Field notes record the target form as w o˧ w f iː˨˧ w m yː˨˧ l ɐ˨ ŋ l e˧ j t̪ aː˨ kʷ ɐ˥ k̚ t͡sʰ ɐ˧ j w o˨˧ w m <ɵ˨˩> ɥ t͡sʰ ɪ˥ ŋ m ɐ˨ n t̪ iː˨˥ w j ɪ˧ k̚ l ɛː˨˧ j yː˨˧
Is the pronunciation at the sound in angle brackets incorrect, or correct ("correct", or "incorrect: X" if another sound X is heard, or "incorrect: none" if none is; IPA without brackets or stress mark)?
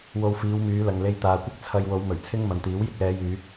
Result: correct